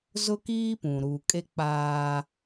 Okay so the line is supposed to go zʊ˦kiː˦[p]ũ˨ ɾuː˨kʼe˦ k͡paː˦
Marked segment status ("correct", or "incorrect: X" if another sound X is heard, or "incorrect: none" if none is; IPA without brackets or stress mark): correct